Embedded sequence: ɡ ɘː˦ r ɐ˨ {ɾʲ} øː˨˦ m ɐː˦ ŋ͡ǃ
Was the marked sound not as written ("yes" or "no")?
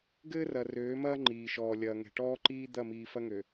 yes